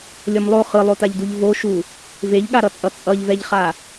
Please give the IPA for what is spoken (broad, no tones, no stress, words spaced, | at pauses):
lʲʌmlˠo χɯlˠotaʎduʎ voʃu | veʎɠaɾʌt͡sʼʌ t͡sʼʌʎvɛʎχa